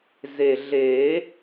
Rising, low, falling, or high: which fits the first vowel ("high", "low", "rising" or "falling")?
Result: low